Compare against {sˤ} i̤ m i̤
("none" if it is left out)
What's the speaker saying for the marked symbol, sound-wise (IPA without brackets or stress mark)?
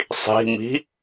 sˤ